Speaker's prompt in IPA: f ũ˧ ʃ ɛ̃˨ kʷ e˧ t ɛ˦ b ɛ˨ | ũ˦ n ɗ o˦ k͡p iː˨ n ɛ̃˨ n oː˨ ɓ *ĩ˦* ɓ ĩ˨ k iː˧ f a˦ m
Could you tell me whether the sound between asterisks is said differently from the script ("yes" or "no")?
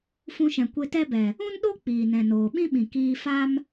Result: no